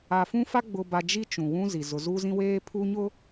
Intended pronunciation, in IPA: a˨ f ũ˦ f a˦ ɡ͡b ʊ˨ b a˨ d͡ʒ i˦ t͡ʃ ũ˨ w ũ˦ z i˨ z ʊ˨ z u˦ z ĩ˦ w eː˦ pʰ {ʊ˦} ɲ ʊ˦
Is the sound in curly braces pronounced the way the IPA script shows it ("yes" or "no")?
no